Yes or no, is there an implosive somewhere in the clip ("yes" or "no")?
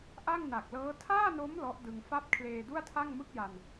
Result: no